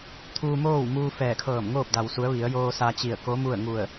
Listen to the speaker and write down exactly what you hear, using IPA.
t̪ʰ uː˧ m oː˥˨ w m uː˧ f ɛː˧˩ kʰ ɤː˧˩ m ŋ oː˥˨ p̚ d a˩ w s u˩˧ ə̯ ʋ i˩˧ ə̯ j oː˧ s a˧ t͡ɕ i˧˩ ə̯ k o˧˥ m u˥˨ ə̯ ŋ u˧˩ ə̯

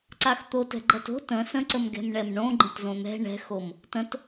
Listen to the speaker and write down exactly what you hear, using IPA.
ǀ a x t̪ o t ɛ̤ ɡ͡ǃ ɐ t o̤ t ə̃ s ə̃ ǀ ə m ɡ ɛ̤ m ɳ ɛ m ɳ õ ɡ͡ǃ ə̃ t z õ n̪ ɛ̤ ɳ ɛ̤ x o m | t ə̃ t

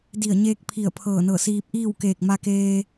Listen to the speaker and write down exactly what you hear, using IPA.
d i˧˩ ə̯ ɲ eː˧ k̚ pʰ i˧˩ ə̯ pʰ ɤː˧˩ n ɤː˧˩ s iː˧ p̚ ʔ iː˥˨ w k eː˧˩ k̚ m a˧ k eː˧

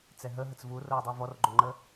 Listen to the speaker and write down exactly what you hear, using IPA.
t͡s ɛ ɦ ə ɦ ə t͡s v u r o ə̯ dˤ u v ɔ r ɡ͡ǃ o ŋ͡ǃ ə

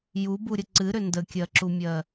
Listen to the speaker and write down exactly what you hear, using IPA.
j u b u ɾʲ ə ǀ ɨ ɾ ʏ n d ə kʲ ɜ ǁ u mʲ ɜ

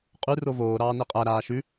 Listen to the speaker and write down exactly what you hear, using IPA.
qʼ ʉ r o v oː ɾ ɑː n e qʼ æ ɾ aː ʃ ʉ

